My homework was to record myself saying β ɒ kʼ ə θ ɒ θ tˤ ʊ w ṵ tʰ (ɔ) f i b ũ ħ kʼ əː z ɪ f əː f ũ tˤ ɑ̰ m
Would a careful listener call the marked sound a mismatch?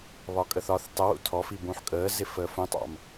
no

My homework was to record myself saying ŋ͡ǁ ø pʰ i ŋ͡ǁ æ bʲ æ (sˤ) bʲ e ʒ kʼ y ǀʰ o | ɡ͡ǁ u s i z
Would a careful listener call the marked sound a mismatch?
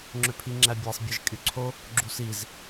no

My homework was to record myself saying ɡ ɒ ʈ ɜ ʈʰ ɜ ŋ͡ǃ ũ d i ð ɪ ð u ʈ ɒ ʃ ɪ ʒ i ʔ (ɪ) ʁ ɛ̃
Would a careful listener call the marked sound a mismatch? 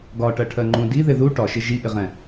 no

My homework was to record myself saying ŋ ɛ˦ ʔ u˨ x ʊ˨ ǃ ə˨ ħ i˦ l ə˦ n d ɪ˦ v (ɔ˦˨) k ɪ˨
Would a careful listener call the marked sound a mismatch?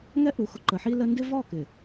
no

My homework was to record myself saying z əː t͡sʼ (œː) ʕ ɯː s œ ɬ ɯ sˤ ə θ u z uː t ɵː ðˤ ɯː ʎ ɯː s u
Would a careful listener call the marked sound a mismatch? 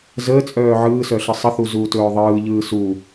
no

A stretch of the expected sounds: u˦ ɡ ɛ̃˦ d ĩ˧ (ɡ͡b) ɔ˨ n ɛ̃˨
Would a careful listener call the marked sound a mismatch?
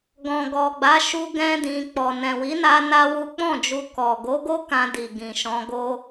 yes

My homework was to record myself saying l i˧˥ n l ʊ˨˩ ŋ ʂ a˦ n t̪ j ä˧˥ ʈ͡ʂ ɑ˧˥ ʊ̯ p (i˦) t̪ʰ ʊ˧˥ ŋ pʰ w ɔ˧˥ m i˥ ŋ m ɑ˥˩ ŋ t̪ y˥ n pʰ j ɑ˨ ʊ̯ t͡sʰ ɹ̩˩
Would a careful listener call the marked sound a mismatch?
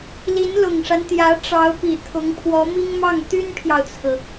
yes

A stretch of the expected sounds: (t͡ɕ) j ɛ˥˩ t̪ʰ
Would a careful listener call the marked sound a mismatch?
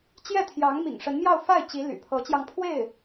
no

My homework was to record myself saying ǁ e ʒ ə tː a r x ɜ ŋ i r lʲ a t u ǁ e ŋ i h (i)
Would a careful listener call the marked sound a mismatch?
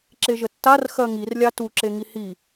no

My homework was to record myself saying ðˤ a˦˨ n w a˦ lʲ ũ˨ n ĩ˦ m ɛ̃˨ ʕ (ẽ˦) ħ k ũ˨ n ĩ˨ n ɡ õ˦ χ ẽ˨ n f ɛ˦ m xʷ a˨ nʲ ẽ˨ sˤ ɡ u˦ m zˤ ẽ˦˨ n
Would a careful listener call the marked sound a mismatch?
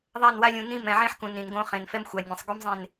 no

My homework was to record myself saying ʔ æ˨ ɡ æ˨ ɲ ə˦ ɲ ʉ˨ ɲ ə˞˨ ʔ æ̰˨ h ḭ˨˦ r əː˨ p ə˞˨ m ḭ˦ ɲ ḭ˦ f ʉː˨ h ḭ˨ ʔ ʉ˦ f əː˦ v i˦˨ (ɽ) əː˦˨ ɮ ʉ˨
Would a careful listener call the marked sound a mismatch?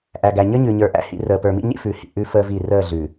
yes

